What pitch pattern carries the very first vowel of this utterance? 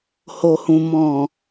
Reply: low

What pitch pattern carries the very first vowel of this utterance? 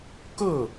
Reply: falling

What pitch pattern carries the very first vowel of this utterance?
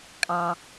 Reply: low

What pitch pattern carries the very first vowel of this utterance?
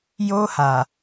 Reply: high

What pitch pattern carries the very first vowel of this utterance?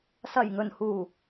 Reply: low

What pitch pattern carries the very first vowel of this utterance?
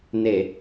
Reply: low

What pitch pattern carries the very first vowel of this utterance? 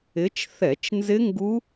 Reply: rising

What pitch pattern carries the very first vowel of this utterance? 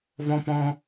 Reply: high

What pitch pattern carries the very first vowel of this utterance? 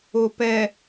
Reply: low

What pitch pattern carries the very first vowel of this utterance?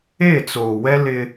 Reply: falling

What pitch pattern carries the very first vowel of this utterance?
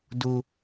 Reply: high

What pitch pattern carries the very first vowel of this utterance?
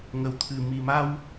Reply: low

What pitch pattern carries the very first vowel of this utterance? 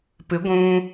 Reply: rising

